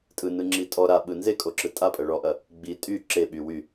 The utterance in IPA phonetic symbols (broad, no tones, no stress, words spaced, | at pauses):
tʼɯnɯŋ͡ǁi tʼɔ ɾa ɓɯnzekʼo ǁɯtʼapʼɐ ɭɔʔɐ | ɡ͡bi tʼy ǁeɓy wy